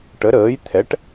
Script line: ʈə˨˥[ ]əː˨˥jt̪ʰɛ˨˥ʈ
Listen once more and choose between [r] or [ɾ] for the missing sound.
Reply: ɾ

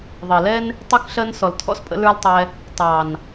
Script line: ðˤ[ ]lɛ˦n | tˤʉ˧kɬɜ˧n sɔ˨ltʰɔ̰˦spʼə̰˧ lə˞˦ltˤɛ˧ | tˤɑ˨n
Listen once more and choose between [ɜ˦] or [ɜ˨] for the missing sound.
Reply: ɜ˨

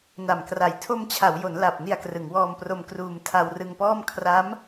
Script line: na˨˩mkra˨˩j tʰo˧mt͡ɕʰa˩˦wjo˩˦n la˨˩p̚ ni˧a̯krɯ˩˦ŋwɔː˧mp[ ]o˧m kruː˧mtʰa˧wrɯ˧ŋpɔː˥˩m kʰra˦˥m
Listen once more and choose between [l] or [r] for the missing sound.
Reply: r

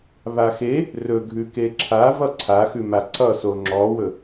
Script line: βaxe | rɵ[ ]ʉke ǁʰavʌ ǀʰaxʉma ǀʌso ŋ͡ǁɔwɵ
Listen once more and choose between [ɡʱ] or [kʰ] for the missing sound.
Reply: ɡʱ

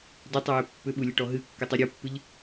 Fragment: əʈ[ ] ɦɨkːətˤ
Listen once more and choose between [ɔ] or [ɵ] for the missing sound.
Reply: ɔ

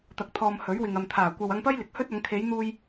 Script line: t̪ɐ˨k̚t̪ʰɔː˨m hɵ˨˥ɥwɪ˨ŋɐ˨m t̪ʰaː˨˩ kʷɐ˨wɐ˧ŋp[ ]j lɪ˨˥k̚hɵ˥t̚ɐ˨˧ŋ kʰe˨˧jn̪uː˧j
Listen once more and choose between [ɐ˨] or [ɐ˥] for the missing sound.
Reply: ɐ˥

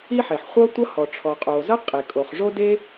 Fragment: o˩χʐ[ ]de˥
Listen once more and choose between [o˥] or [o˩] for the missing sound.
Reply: o˥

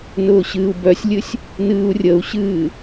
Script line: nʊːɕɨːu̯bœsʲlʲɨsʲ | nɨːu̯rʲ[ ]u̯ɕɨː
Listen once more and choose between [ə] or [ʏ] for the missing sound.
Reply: ə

